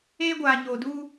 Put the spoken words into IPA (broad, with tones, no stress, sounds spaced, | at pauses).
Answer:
eː˦ ɡʷ aː˨ ɲ oː˨ d uː˦